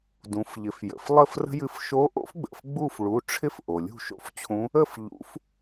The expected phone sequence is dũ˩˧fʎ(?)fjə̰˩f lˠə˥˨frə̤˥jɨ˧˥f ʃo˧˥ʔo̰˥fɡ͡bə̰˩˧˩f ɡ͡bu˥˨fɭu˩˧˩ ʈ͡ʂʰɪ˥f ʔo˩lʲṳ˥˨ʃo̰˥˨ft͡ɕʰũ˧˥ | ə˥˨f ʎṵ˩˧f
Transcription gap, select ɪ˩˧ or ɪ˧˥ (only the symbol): ɪ˩˧